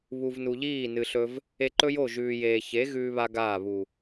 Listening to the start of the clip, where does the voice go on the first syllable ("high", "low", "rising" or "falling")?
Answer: low